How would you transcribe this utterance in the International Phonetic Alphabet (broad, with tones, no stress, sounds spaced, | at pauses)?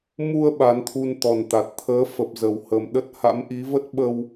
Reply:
m u˧ ə̯ ɓ a˨˦ n t̪ʰ u˧ n t̪ ɔ˨˩ n t̪ a˨˩ t̚ t̪ʰ əː˨˦ f ə˨˩ p̚ z ə˨˩ w h ə˨˩ m ɗ ə˦˥ t̚ h a̰˧˥ m ʔ i˨˦ v ə˦˥ t̚ ɓ ə˧ w